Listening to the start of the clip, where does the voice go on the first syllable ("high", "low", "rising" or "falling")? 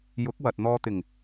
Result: rising